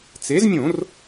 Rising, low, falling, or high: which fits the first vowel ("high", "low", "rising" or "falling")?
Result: rising